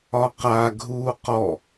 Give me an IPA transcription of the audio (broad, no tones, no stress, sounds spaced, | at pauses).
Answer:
ɒ q a ɡʱ uː q ɔ